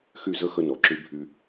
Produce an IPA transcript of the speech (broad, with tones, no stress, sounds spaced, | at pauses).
x y˥˩ z ə˥ x ə˧ n ɔ˩ ǁ y˧ bʱ y˧